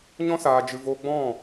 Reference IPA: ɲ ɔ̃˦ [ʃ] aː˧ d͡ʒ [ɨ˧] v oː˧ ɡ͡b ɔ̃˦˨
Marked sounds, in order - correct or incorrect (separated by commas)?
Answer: incorrect, correct